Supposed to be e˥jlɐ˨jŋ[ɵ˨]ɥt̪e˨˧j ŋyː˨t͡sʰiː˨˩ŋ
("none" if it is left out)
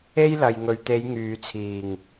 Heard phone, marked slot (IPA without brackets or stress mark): ɵ˨